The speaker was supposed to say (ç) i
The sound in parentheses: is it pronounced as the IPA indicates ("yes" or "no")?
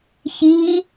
yes